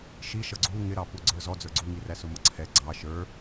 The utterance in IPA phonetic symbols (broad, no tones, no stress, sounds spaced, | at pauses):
ʃ i ʃ ʌ ɡ͡ǀ u ŋ ɪ ɾ ɑ p u ɡ͡ǀ ə˞ z ɔ d͡z ə˞ ɡ͡ǀ u ŋ i r æ s ʊ m ʌ ǀʰ ɛ ɡ͡ǀ ɑ ʃ ə˞